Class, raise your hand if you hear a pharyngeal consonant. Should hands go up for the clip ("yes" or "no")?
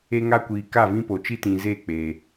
no